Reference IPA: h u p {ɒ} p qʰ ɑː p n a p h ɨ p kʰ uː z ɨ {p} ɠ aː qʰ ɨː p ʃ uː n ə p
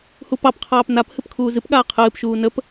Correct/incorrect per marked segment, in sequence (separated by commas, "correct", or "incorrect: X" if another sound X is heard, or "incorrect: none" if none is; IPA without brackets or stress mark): incorrect: ɑ, correct